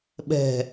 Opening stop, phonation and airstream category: implosive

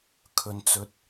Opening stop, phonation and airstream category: aspirated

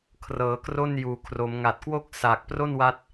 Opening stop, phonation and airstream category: aspirated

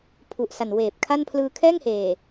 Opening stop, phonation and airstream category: aspirated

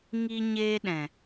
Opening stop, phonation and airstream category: implosive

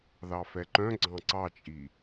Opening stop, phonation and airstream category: click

